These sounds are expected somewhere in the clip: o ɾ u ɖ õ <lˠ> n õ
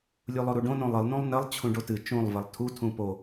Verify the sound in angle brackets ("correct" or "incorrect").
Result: incorrect